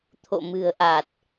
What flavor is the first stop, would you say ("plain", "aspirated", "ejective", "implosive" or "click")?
aspirated